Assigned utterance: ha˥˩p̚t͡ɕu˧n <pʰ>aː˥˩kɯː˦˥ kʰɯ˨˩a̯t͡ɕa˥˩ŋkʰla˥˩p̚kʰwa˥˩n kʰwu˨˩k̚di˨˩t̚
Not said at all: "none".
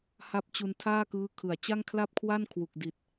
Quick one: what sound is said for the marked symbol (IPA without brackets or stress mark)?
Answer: tʰ